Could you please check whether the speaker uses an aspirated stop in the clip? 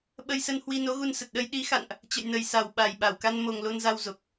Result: no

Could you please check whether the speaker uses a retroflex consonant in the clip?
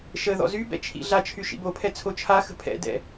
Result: no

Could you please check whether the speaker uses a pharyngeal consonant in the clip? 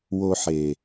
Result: yes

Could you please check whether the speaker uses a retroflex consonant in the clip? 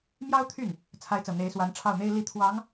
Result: yes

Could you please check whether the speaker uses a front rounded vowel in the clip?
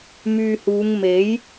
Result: yes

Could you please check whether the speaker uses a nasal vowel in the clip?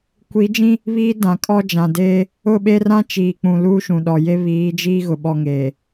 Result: yes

